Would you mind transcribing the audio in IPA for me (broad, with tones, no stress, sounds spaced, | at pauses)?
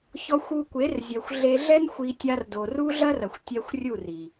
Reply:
ç ɔ˧ xʷ u˧ kʷ e˨˦ r zʲ ɛ˨ xʷ ɮ e˧ ɮ ɛ˦ n xʷ i˧ tʲ a˧ r d o˨ r u˦ ɮ ɐ˦ r ɐ˨ xʷ tʲ ɛ˧ xʷ rʲ u˦˨ r i˨